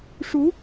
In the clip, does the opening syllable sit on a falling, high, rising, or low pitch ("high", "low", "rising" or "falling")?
rising